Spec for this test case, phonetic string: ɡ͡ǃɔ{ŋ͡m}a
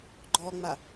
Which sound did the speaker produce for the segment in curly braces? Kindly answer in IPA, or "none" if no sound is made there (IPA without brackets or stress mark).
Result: ŋ͡m